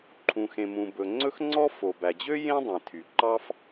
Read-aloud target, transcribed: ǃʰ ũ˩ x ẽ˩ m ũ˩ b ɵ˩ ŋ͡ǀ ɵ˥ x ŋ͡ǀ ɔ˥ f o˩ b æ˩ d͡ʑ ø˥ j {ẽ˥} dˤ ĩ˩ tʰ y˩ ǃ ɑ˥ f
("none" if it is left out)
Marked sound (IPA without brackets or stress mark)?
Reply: ẽ˥